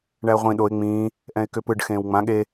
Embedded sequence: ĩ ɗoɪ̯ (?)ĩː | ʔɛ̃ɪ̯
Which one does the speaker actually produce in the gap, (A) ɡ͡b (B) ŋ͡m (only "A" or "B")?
B